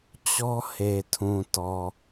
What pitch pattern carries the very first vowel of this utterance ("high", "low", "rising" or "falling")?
high